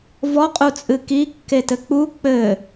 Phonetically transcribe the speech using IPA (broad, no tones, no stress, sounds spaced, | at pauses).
v ɔ qʼ u t͡sʼ ɨ k i kː e t ɘ k͡p u k͡p ɘ